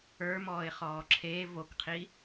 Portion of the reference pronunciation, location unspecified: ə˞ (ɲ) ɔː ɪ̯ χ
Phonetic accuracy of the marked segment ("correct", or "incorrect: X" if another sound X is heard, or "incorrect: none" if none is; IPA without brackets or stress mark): incorrect: m